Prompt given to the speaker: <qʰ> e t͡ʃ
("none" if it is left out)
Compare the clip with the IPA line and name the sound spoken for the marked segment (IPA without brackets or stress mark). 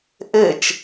ʔ